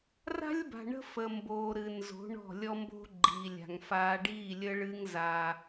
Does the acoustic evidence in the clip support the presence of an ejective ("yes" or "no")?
no